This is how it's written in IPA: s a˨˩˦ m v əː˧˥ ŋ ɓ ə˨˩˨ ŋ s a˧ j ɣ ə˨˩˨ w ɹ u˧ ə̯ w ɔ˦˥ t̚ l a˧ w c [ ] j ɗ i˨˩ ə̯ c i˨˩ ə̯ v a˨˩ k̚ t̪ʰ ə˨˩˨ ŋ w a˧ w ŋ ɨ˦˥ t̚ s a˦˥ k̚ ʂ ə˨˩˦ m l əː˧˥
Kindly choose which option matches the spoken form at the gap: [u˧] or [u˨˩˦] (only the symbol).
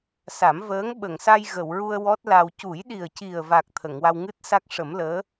u˨˩˦